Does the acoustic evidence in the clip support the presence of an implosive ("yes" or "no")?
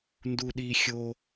yes